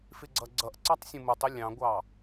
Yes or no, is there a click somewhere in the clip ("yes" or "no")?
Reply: yes